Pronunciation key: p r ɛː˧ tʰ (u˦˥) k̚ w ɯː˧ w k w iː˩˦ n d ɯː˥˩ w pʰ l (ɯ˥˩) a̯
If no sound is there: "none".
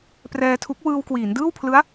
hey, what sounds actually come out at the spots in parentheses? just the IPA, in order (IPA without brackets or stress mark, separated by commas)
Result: u˦˥, ɯ˦˥